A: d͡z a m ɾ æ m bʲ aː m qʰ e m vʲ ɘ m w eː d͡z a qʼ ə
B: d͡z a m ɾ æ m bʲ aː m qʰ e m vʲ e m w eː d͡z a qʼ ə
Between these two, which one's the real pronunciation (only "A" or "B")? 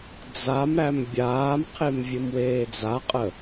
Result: A